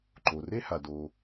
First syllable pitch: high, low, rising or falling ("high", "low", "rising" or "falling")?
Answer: low